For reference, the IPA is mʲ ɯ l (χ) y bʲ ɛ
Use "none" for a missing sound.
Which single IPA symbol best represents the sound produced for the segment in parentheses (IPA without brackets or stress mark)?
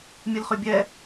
χ